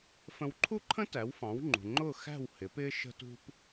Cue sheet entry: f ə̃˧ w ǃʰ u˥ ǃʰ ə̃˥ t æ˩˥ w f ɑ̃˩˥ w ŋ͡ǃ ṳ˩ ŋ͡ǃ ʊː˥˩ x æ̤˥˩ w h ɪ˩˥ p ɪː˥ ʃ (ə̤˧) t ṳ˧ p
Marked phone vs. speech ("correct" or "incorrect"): correct